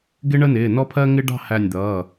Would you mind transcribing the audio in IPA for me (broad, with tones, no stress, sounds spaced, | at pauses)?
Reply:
ɡ ɪ˦ ɳ ə˦ n ɪː˩˧˩ n ɔ˦ pʰ ɜ˦ ŋ ɪ˦ ɖ ɑ̤˥˨ h æ˧˩ nʲ d̪ ʌː˩˧˩